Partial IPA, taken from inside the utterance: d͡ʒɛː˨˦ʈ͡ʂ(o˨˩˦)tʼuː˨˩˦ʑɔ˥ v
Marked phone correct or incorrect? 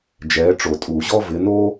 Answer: correct